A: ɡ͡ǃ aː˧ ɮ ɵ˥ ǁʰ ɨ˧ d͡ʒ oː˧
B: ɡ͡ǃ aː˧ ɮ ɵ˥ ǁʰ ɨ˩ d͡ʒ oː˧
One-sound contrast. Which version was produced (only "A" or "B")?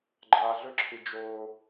A